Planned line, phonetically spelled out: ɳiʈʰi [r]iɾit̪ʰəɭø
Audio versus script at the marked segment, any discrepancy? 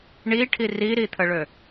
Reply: no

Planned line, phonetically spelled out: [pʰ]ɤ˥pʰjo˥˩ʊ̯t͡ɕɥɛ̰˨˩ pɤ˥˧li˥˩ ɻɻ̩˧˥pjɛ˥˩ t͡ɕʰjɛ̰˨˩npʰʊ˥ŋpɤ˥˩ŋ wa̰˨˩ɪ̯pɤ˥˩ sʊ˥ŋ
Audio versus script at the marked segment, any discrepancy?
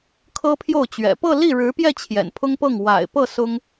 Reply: yes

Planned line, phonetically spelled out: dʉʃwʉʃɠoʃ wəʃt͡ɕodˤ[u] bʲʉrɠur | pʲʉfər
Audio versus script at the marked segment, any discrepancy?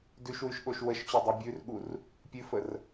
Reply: no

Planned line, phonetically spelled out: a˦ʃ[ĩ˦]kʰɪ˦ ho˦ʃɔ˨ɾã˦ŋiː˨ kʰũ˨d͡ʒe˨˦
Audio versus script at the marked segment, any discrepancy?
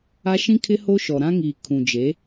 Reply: no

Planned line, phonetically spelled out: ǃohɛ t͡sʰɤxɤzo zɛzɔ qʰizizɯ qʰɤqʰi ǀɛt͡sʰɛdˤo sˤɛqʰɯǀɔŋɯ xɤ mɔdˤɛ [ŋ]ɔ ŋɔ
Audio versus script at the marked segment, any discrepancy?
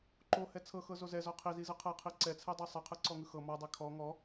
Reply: yes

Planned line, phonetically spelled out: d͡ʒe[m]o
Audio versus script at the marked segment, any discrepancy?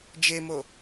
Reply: no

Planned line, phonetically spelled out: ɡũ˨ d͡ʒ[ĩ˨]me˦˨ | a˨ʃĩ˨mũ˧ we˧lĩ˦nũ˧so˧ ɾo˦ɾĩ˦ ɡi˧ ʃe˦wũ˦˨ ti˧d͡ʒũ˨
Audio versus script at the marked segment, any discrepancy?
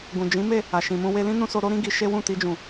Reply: yes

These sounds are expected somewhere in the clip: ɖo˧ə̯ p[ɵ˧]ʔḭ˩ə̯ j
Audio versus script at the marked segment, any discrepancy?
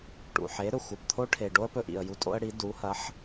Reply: no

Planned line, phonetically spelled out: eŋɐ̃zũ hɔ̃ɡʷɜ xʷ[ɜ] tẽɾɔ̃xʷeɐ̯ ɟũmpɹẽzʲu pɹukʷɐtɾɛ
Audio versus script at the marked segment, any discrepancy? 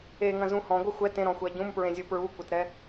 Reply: yes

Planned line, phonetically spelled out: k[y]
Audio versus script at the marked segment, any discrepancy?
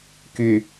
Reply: no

